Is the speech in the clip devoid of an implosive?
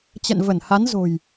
yes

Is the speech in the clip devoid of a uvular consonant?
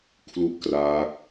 yes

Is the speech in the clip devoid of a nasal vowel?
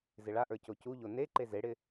yes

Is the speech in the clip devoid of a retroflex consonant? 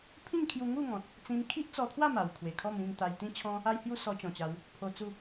yes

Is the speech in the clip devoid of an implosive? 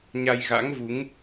yes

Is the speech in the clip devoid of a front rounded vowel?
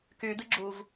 no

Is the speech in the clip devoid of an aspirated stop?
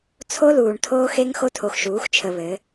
no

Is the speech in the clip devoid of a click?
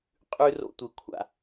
yes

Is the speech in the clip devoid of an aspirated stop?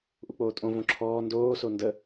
no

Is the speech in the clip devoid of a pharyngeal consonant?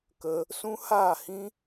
yes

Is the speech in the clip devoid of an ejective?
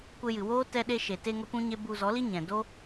yes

